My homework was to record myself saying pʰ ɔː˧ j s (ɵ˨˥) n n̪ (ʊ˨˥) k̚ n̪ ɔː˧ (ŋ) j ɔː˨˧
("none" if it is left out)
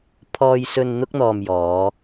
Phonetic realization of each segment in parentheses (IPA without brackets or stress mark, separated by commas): ɵ˧, ʊ˥, m